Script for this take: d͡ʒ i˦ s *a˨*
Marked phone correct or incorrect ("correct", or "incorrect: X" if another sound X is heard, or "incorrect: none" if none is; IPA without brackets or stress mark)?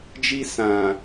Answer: incorrect: ã˨